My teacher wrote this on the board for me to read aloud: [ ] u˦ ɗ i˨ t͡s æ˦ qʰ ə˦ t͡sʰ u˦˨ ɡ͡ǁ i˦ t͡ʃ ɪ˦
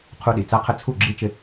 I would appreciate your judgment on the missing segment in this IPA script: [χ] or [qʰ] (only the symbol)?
qʰ